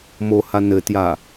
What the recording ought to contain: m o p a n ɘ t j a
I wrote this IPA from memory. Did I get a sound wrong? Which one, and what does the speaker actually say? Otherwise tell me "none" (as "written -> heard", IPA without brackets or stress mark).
p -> h